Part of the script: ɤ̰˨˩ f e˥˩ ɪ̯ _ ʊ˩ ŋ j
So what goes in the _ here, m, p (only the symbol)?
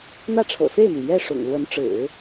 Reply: m